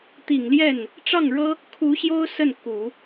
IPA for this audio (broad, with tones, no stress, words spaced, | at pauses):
t̪i˨˩ŋljɛ˥˩n | ʈ͡ʂɑ˥˩ŋɻɤ˥ | kʰu˧˥ɕjo˥ʊ̯ sə˥˩nku˨˩˦